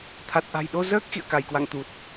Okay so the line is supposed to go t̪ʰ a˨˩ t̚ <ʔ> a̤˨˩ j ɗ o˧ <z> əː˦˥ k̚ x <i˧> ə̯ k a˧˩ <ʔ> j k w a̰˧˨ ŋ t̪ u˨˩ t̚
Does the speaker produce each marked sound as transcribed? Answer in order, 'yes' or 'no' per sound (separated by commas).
yes, yes, no, no